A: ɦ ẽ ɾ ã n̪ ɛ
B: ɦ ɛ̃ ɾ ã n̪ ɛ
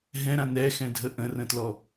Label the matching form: B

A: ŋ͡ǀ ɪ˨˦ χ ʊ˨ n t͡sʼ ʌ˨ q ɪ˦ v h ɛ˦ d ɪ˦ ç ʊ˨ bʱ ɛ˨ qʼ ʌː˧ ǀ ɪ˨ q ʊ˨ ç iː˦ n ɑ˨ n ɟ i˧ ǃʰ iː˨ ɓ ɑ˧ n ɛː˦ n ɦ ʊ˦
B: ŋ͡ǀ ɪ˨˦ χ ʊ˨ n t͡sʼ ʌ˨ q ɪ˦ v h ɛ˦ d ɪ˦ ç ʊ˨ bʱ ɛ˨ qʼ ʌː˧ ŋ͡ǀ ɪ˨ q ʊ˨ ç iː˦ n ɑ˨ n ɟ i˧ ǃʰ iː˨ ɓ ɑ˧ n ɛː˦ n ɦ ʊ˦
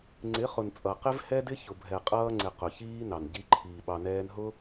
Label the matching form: B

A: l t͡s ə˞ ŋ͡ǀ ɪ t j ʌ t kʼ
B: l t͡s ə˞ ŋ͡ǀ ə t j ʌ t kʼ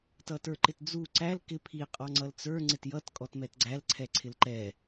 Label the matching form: A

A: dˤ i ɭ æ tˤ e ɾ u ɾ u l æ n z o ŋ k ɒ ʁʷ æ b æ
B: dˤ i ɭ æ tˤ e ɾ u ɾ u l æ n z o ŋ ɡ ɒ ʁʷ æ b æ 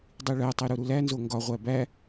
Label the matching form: B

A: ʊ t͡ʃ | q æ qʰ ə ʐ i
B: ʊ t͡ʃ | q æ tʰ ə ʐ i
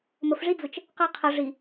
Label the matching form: A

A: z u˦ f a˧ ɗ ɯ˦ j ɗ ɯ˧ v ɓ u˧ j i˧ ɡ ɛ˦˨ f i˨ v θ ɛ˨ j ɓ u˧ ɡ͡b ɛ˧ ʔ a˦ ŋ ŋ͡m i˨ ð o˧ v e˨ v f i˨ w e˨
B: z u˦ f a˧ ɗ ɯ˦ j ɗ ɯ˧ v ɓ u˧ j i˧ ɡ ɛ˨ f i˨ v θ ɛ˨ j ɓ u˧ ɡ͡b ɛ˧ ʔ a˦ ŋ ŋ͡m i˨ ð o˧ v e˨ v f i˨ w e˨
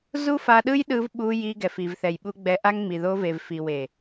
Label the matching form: B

